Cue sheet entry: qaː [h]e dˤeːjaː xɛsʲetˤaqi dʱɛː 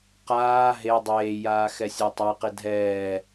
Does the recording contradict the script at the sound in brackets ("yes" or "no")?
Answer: yes